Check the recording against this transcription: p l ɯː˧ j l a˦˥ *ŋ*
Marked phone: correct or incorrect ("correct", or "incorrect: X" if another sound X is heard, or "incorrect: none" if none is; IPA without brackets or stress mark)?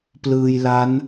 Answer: incorrect: n